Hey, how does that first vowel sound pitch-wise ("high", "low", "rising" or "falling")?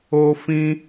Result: high